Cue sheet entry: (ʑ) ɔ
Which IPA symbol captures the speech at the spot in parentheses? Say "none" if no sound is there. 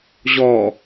ʑ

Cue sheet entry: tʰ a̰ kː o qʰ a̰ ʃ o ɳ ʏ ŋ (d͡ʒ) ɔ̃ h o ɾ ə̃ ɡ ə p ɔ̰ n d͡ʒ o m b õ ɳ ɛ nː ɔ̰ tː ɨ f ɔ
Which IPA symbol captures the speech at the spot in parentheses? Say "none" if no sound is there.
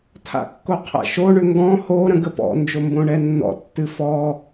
ɡ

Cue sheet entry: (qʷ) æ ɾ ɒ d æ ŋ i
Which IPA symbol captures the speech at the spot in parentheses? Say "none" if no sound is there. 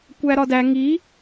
kʷ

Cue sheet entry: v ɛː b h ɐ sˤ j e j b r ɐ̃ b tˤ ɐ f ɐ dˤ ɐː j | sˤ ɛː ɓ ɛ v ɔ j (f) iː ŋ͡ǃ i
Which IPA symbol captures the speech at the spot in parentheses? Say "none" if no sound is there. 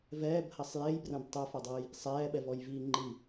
v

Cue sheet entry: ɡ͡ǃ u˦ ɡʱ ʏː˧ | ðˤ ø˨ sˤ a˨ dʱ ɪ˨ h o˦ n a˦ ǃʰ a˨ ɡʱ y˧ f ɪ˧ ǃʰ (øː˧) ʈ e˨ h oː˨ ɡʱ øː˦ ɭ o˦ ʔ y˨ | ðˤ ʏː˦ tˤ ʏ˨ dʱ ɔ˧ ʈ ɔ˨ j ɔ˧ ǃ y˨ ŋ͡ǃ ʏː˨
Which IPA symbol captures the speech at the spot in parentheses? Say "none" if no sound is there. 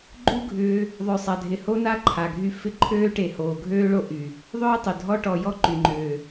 øː˧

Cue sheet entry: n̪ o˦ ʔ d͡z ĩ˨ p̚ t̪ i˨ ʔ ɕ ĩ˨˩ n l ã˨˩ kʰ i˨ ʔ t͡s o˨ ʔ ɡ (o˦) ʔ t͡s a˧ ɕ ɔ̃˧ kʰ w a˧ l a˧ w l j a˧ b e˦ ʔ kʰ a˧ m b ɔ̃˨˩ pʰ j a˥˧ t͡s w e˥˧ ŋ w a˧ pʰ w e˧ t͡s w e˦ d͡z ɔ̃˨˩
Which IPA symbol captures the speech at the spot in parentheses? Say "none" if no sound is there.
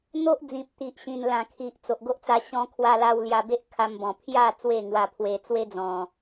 o˦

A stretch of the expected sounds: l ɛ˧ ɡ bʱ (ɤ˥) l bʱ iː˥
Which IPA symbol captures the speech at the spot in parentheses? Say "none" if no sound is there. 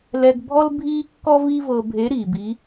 ɔ˥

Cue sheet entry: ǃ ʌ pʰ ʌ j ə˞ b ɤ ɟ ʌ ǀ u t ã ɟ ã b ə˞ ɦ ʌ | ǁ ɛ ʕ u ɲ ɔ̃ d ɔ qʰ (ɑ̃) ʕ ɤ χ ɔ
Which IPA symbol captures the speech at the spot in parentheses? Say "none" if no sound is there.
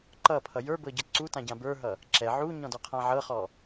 ã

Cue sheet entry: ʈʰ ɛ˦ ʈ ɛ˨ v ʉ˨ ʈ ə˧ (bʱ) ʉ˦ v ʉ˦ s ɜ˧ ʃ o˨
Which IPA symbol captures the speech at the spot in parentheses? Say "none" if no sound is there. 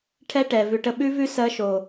ɓ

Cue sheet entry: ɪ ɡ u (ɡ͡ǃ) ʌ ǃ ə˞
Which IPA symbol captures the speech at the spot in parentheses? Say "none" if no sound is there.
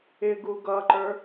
ɡ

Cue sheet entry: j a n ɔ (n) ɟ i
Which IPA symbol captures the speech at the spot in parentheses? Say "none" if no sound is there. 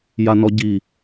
none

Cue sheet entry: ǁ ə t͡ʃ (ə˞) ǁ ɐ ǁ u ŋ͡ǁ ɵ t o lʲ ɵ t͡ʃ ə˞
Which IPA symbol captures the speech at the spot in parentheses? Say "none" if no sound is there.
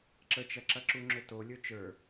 ɐ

